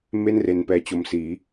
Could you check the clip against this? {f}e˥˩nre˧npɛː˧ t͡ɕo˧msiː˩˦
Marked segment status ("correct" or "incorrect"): incorrect